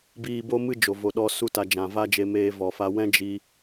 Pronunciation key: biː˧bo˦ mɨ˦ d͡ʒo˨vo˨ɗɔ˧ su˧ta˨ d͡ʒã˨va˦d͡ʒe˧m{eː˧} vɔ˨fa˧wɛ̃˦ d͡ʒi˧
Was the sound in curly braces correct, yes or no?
yes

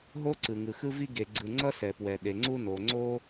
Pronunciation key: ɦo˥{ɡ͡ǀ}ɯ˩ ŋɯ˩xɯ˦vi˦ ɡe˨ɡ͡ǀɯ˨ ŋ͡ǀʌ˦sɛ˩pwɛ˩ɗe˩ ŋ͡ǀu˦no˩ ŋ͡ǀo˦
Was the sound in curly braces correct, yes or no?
no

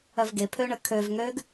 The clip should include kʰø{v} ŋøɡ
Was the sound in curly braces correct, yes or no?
yes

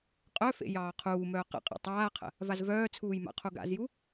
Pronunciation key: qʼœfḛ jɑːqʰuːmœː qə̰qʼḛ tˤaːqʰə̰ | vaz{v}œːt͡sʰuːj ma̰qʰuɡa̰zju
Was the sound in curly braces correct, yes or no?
yes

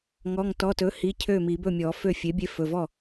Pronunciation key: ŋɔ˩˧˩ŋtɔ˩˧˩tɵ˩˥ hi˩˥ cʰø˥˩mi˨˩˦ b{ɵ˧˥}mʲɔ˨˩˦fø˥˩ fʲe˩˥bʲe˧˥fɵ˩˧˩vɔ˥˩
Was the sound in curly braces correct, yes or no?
no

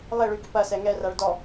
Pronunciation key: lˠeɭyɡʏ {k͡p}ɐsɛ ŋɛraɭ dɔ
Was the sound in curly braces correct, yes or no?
no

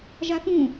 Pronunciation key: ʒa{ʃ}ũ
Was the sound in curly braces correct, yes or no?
no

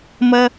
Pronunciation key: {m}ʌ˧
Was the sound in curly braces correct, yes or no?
yes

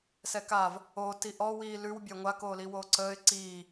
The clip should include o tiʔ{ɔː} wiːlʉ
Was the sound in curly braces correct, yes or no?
no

